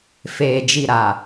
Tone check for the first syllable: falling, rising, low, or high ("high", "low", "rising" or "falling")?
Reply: low